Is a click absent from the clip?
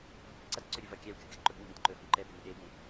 no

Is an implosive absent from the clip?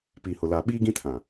no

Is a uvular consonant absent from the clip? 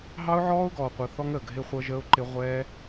no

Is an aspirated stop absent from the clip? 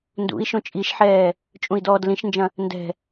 yes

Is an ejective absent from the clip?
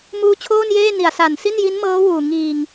yes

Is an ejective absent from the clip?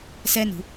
yes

